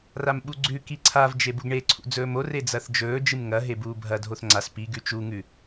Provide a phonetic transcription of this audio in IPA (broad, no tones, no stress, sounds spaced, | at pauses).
r a m ɓ u ɡ͡ǀ ʉ k i ǀʰ a v d͡ʒ e b u ɡ ɳ e ǀʰ ṵ d͡z ɵː m o r e d͡z ɐ θ d͡ʒ ɵː d͡ʒ ɨ m ŋ ɐ ɦ e b uː bʱ ɐ dʱ o θ ŋ͡ǀ a s p i ɡ ʉ t͡ʃ u ŋ ʉ